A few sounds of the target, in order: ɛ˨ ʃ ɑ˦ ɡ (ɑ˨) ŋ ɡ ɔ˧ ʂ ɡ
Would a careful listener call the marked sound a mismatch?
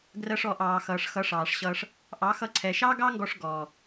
yes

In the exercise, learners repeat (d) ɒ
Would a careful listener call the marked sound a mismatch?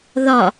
yes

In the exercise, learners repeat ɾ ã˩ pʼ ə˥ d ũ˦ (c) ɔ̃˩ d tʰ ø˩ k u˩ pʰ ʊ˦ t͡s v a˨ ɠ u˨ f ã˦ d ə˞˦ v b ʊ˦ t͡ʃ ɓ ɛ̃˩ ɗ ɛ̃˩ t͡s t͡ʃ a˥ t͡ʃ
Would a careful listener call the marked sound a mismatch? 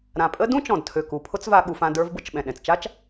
yes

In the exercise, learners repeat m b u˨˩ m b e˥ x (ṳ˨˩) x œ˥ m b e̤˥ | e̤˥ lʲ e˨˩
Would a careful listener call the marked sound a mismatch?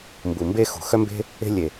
no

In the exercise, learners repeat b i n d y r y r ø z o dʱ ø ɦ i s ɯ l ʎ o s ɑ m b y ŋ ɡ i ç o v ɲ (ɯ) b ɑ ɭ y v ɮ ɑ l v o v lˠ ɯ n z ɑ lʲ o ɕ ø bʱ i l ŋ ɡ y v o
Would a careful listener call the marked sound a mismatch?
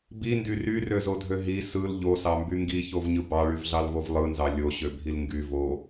no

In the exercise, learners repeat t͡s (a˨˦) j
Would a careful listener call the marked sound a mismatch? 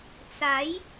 no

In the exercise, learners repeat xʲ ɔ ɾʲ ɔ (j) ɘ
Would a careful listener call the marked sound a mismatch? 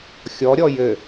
no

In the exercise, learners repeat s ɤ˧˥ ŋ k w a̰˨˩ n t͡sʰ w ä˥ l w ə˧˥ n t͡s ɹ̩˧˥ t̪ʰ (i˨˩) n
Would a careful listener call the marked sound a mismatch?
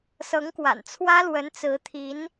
yes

